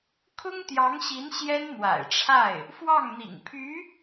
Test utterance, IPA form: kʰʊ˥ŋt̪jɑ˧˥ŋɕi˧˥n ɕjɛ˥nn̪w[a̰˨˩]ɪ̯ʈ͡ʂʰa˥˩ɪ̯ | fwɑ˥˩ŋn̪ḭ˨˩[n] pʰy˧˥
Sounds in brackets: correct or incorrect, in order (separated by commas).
correct, incorrect